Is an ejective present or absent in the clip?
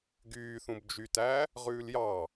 absent